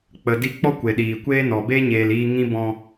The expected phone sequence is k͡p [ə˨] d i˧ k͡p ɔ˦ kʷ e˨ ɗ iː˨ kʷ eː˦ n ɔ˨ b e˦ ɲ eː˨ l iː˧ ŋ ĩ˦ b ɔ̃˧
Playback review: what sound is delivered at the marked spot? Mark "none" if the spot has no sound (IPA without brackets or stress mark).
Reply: ə˨